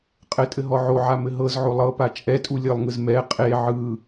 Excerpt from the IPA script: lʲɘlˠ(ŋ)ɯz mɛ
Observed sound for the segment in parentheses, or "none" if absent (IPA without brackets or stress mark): ŋ